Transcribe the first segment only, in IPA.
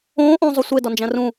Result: õː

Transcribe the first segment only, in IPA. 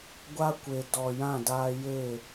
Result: ɡʷ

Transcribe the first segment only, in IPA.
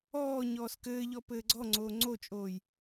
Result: ɔː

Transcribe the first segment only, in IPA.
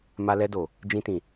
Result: m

